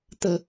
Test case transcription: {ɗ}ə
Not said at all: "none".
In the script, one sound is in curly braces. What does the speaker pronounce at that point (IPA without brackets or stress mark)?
t̪